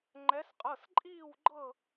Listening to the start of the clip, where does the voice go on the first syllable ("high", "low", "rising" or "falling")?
rising